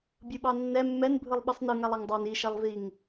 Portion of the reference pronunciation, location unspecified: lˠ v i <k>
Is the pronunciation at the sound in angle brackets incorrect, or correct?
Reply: incorrect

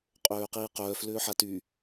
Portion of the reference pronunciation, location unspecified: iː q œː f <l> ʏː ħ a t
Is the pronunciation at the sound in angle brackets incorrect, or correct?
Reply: correct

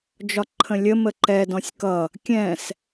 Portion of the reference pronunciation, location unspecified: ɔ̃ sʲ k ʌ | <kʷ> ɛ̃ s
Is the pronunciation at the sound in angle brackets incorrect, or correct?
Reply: incorrect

